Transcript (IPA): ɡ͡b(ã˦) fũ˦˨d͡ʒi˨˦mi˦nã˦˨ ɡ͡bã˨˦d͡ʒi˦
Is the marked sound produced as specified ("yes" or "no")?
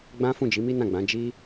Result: yes